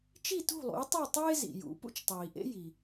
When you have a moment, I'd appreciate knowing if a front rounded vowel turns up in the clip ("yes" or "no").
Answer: no